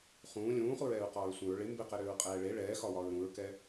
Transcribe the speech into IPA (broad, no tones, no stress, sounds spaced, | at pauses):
χ ũː lʲ ũː χ u ɹ ɛː ɹ q ɒː ɹ sʷ ə̃ ɹ ɭ ɪ m b ɪ q ɛ ɾ ʏː ɹ qʼ ɛː ɭ e ɭ ɛː x ɒ w ɒ ɹ ɾ ũ ɹ k ɛ